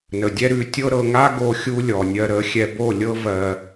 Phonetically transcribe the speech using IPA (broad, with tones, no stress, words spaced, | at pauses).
nə˨dʲɛ˦ɾʉ˨˦ tʲɤ˦ɾɤ˧ ŋa˦ɡo˧ xʲu˦lʲɔ˨nʲɜ˧ ɾə˨˦xʲɛ˧ bo˦˨lʲɤ˦ vɜ˧